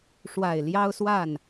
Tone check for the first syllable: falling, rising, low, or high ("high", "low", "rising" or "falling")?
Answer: low